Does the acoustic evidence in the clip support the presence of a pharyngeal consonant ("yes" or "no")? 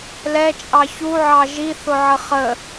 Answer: yes